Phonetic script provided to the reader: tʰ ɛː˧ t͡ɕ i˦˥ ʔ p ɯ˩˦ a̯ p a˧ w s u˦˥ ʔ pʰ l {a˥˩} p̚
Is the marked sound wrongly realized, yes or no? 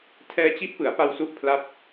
yes